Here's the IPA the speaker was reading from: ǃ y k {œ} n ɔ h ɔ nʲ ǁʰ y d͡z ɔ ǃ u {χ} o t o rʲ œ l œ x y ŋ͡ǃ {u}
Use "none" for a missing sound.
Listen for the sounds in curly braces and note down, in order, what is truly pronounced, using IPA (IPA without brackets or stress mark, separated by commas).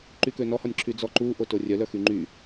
ø, ʔ, y